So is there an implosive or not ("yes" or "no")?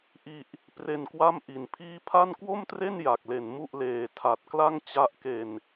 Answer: no